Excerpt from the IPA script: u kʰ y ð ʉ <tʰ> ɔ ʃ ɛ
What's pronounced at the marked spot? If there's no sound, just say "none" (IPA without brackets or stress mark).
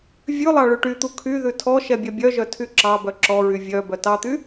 tʰ